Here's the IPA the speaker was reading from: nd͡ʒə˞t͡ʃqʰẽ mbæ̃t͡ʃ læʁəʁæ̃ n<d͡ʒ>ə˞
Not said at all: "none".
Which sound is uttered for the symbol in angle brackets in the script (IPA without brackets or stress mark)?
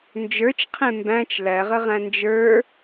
d͡ʒ